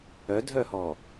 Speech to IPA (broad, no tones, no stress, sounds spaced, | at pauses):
œ dʱ œ h ɔː